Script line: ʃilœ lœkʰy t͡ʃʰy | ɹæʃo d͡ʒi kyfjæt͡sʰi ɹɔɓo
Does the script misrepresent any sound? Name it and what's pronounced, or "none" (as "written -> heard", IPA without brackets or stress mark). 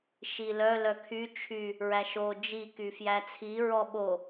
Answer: none